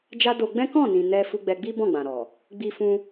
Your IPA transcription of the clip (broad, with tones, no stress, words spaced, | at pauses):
d͡ʒa˧ do˧ɡ͡bɛ̃˦ kɔ̃˦˨nĩ˨ nɛ˧fu˧ ɡ͡bɛ˧ɡ͡bi˦ bɔ̃˦˨ɡ͡bã˨ɾɔ˨ | ɡ͡bi˦fũ˦